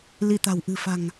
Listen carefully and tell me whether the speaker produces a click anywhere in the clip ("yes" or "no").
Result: no